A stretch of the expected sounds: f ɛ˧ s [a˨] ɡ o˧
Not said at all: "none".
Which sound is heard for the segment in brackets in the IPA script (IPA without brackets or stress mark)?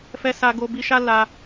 a˧